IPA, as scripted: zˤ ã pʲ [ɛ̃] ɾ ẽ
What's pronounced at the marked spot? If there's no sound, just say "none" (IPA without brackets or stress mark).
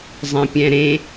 ɛ̃